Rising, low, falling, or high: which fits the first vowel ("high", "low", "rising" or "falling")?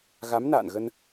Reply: rising